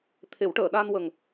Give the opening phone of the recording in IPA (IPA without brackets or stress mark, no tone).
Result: t̪ʰ